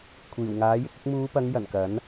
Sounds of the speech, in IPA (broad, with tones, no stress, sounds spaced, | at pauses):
kʷʰ iː˨˩ w ŋ aː˨˥ j ɪ˧ k̚ ɪ˧ k̚ m uː˨˧ p ɐ˨˧ ŋ j ɐ˨˩ n k ɐ˨˥ n